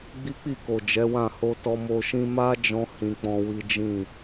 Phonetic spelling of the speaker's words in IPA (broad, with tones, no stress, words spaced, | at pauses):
ɡ͡bi˦k͡pi˦˨ko˨ d͡ʒɛ˨˦wã˦˨ ho˧tɔ˧ mo˧ʃĩ˦ ma˦ d͡ʒɔ̃˦ hĩ˧k͡pɔ̃˦wi˦ d͡ʒĩ˦˨